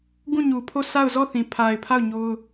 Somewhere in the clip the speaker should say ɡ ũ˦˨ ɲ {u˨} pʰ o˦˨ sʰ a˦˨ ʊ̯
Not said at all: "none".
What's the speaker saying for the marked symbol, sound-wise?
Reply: u˨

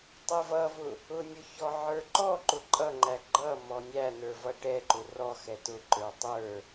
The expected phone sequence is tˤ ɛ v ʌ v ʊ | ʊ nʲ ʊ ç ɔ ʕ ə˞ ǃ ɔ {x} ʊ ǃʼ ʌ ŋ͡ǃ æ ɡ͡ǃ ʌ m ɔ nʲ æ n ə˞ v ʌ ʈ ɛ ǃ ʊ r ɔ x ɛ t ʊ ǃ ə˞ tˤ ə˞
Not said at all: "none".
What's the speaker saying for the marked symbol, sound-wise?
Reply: ǃ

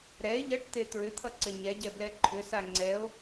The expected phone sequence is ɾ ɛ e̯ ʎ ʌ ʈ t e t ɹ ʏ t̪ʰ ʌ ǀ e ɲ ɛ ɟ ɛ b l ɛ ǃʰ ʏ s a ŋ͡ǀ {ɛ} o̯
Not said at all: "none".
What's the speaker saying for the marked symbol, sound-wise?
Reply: ɛ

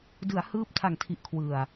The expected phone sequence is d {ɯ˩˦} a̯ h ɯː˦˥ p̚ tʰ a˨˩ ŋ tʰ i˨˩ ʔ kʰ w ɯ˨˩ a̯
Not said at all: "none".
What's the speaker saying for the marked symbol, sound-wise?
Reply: ɯ˩˦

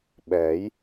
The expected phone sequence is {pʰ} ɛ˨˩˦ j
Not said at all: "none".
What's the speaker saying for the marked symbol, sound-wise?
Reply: ɓ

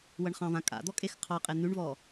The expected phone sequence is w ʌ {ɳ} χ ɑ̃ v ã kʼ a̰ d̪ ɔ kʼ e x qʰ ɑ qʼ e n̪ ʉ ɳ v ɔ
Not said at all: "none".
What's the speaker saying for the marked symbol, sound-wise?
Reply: ɳ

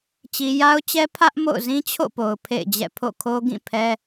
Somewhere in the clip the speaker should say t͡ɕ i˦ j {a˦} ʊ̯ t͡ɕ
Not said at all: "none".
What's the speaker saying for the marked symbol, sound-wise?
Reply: a˦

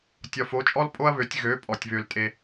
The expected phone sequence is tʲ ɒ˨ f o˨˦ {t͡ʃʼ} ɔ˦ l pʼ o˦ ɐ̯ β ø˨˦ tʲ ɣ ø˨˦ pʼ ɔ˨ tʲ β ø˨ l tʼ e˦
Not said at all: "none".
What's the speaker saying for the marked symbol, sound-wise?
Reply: t͡ʃʼ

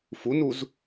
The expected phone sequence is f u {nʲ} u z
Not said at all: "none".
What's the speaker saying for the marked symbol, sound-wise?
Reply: n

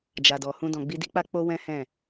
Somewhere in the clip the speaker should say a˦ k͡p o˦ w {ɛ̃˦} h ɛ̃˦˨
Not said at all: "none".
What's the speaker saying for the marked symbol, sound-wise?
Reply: ɛ̃˦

